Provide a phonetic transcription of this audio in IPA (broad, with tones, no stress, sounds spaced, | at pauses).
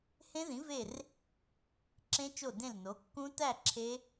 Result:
h ẽ˦˥ ð ĩ˨˥ v e˦˨ r | ǁ ẽ˦˥ t͡ʃ o˦˨ d ẽ˦˨ l n o˨˥ kː ũ˦˥ t æ˦˨ ǁʰ e˦˥